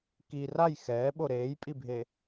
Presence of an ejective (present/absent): present